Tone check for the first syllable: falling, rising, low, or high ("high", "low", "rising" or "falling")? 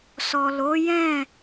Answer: low